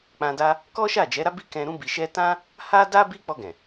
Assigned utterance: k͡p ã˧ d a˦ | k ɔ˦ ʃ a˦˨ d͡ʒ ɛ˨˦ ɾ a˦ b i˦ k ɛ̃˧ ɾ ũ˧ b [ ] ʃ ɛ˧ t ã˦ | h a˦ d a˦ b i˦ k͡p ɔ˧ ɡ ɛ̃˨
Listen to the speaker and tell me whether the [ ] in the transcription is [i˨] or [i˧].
i˨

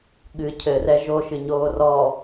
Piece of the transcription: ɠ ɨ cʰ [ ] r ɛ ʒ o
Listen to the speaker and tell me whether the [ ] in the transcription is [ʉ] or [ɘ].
ɘ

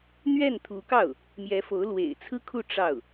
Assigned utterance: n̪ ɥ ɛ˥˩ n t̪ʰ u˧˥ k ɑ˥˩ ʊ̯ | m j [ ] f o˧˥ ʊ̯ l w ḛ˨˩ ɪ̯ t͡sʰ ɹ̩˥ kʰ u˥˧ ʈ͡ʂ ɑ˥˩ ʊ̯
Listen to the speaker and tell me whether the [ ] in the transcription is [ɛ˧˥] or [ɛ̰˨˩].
ɛ˧˥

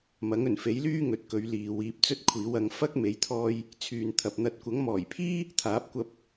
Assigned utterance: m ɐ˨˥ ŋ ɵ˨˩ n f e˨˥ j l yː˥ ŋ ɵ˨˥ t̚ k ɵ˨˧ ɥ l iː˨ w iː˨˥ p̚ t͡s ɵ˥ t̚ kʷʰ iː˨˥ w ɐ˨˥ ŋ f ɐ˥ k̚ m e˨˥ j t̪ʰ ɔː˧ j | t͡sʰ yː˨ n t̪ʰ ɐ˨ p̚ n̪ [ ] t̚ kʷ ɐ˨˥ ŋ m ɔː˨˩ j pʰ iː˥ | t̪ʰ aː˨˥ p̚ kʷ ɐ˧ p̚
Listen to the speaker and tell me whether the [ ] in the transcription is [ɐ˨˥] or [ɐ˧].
ɐ˨˥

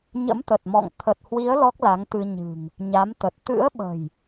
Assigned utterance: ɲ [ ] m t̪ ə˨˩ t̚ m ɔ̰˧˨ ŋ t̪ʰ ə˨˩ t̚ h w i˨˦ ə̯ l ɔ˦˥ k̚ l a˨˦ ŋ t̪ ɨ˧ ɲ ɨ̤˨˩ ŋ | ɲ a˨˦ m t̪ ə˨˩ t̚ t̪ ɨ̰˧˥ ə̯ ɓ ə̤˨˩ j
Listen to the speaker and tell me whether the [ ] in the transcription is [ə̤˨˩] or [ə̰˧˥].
ə̰˧˥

